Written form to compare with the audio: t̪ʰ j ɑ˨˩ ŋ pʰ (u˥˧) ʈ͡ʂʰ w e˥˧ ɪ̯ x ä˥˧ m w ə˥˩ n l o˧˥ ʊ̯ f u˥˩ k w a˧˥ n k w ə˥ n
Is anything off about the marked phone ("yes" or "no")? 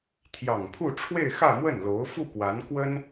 no